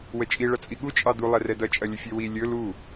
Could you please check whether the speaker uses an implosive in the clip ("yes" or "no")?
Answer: yes